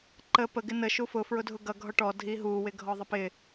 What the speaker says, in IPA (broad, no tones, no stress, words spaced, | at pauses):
ǃə pə ɡɪnə ʃufʊ fɹʊdʱʊɡʌ ɡʱɔʈɔ dʱiɦu wɪɡʱɔðˤəpɪ